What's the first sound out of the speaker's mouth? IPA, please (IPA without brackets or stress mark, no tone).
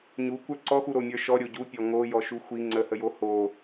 ɲ